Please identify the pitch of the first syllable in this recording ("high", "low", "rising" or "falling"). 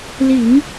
low